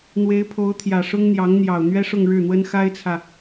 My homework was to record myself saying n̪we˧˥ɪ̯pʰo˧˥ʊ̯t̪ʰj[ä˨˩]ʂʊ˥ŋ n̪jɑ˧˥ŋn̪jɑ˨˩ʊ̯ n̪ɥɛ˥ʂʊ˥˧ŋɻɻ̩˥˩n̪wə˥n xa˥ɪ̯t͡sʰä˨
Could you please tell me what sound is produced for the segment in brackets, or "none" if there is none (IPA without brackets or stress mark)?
ä˨˩